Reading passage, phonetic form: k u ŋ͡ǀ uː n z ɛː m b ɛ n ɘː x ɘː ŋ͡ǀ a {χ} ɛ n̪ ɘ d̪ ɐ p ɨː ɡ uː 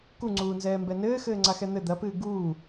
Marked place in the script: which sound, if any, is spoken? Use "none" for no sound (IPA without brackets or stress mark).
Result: x